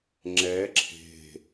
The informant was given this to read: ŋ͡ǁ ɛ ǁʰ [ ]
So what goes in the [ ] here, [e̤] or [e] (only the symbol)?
e̤